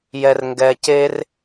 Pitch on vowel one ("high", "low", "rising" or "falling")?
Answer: high